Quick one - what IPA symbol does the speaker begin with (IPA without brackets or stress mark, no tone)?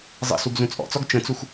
zˤ